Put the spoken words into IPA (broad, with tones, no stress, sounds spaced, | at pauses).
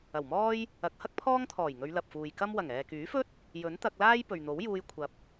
ɐ˨˩ w m ɔː˥ j | ɐ˨˥ k̚ h ɐ˥ k̚ pʰ ɔː˥ ŋ t̪ʰ ɔː˨˩ j ŋ ɵ˨˧ ɥ l ɐ˨ p̚ f uː˨ j k ɐ˥ m w ɐ˨˩ ŋ ɛː˨ k yː˨˥ f ɵ˥ t̚ | j ɵ˨˥ n t̪ ɐ˧ k̚ l aː˥ j p ɵ˨ ɥ n̪ o˨˥ w j uː˧ j kʷʰ ɐ˨ p̚